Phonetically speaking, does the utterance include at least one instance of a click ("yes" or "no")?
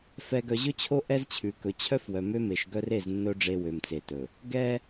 no